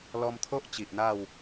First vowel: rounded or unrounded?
rounded